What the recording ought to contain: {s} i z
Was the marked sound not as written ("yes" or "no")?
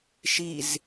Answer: yes